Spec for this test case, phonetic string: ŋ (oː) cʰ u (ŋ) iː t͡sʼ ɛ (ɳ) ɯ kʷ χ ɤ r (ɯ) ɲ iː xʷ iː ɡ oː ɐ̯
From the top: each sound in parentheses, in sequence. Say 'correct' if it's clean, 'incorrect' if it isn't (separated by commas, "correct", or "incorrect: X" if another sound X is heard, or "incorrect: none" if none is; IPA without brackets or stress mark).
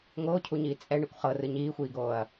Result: correct, incorrect: ɲ, correct, correct